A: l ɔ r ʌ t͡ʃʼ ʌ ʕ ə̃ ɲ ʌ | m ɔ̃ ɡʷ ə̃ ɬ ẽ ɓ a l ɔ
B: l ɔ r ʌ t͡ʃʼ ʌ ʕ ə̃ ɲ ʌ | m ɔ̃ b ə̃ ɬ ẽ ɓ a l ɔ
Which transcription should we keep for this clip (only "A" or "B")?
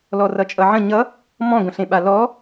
A